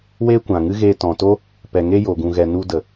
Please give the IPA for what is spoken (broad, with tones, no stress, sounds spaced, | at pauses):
w eː˦ kʷ ã˨ ŋ ɨ˦ ɣ eː˧ t ɔ̃˨ t o˦ | p ɛ˨ ŋ e˦ j o˨ ɡ ũ˨ ɣ ɛ˨ n u˧ d ə˨